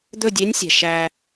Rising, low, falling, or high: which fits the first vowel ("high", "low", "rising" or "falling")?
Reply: falling